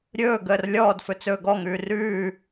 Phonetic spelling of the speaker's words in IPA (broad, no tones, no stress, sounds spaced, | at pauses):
ɾʲ ɵː ɡ əː r lʲ ɔː d f ɵ t͡s ɵː ɡ ɔ ŋ ʉː r ʉː